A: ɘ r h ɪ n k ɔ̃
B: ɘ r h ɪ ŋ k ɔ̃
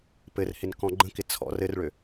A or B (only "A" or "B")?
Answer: A